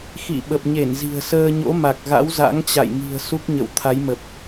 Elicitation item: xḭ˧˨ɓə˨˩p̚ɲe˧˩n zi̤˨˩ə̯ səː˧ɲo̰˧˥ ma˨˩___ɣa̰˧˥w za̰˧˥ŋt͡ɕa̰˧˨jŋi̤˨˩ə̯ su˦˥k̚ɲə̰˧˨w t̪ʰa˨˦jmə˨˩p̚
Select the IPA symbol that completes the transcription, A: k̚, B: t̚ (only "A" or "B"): A